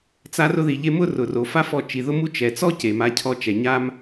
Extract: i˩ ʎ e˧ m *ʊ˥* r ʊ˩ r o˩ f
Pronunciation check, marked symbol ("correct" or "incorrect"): correct